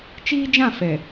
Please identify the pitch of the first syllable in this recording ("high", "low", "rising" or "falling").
high